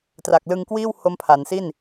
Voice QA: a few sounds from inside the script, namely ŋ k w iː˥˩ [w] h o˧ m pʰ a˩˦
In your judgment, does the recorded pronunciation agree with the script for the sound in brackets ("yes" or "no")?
yes